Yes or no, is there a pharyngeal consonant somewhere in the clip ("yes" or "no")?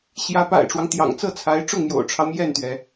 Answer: no